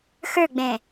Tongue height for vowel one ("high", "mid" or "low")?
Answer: mid